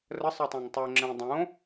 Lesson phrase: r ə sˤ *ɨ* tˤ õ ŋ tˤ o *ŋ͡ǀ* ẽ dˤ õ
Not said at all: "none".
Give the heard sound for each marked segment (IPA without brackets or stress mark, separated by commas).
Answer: ɨ, ŋ͡ǁ